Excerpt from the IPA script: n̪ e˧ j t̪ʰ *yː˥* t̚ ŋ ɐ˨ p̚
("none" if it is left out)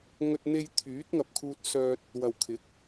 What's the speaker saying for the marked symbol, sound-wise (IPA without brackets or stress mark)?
yː˨˥